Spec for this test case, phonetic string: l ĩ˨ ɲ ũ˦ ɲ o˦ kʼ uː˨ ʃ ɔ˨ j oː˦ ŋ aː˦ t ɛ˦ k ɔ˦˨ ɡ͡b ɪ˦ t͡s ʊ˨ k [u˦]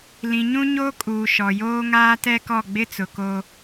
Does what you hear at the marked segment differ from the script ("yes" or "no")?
yes